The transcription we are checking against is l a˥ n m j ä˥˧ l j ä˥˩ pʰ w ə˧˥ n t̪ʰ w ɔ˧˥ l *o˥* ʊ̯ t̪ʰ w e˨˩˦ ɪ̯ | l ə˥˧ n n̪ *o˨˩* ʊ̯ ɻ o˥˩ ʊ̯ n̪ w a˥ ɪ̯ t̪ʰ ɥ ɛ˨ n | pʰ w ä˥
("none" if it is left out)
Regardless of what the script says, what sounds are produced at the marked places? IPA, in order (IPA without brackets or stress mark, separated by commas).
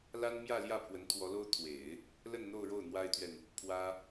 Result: o˥, o˥˧